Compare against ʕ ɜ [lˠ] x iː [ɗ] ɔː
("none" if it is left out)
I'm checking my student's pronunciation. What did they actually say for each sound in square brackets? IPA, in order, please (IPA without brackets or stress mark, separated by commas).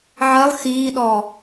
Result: lˠ, ɗ